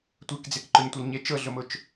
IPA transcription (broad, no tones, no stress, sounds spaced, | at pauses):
tʷ e k d͡z e k ǃ ʊ ɲ tʷ ɤ l ɲ e t͡ʃ ɤ ɮ ʊ m ʊ t͡ʃ